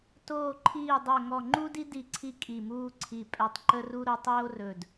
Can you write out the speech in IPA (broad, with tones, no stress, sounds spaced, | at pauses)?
t oː˧˩ ǃʰ iː˧˩ dˤ o˧˩ ŋ ɔ˧˩ ŋ͡ǃ u˥ d i˥ d i˧˩ ǀʰ i˥ kʼ i˧˩ m uː˥ ǀʰ i˧˩ pʼ ɛ˧˩ tˤ ǃ ə˥ r u˥ ɾ o˥ tˤ oː˥ r ɵ˧˩ d